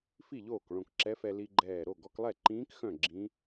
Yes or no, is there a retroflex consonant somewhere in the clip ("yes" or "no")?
yes